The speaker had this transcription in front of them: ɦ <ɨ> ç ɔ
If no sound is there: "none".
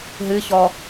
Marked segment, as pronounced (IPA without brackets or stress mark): ɨ